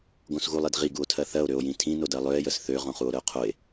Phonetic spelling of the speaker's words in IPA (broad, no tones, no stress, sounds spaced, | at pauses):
ɡ õ s ɣ u lˠ i d ʁ i ɡ u o̯ tʰ ɜ θ ɜ o̯ ɾ ø o̯ j ĩ tʰ ĩ n o d ɜ lˠ ø e̯ j ə s θ ø ʁ õ χ u o̯ ɾ ə o̯ qʰ o e̯